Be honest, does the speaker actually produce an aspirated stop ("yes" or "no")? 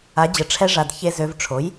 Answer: yes